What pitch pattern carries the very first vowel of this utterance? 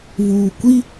low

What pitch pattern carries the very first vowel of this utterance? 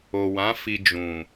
low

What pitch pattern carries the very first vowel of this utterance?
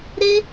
high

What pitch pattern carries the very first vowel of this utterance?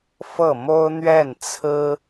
falling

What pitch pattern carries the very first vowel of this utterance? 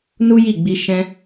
high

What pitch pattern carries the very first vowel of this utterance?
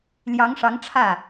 rising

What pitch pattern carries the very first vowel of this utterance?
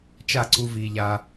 falling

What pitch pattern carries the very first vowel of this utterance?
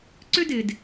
high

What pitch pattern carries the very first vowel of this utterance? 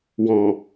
low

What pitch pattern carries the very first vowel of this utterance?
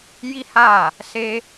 high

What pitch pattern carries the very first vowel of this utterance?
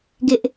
high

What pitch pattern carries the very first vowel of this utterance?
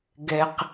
low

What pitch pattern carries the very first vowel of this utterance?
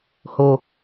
low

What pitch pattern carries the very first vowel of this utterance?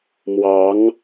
rising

